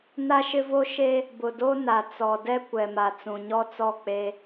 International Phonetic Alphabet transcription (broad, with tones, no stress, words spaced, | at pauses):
na˦ʃɪ˦vo˦ ʃe˦ | bʊ˨do˦ na˨ t͡sɔ˨dɛ˦ kʷɛ˨ma˨ t͡sũ˨ɲɔ˦t͡sɔ˦˨ k͡pe˦